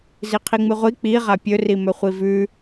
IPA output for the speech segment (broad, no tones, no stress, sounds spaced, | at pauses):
z i qʰ i ŋ͡m ɨ ʁʷ i k͡p i ʁ a pʲ ɵ r i m ɵ χʷ i v ʉ